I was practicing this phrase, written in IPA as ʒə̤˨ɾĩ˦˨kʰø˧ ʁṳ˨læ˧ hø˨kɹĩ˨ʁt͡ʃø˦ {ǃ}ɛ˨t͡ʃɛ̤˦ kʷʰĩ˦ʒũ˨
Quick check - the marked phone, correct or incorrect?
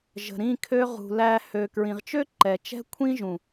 correct